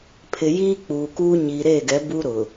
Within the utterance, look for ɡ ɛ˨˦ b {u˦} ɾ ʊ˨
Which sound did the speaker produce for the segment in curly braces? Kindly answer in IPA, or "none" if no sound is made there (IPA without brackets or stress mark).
u˦